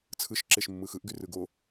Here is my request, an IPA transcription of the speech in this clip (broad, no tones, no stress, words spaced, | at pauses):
t͡sʰɯʃǁeʃ mːɯxɯʔɡy rɯɡo